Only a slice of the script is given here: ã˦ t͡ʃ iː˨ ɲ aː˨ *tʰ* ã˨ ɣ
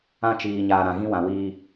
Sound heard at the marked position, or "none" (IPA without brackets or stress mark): ɾ